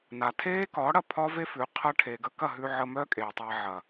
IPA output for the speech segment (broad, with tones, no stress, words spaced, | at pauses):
na˨tʰeː˦kɒː˨˦ɽɐ˧ pʰɒː˦ve˦fʉ˨˦ qʰɐ˧ʈʰe˨ ɡə˧kɐ˦˨ɦʉ˧ ʕə˧mœː˦ kʼeː˨tˤa˧ʕɐ˨